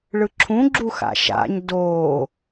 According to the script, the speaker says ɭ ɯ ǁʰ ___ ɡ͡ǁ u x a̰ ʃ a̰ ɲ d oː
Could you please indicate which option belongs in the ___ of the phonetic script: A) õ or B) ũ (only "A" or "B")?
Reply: B